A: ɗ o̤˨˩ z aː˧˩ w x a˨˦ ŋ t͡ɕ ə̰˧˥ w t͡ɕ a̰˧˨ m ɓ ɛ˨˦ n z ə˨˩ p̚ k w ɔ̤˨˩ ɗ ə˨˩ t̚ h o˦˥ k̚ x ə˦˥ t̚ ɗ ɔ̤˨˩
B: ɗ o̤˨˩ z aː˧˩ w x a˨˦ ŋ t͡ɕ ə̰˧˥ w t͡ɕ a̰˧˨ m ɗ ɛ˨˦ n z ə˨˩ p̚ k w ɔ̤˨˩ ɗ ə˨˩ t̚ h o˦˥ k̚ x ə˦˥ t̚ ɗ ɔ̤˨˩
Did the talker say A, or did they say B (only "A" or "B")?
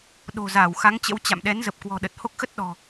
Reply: B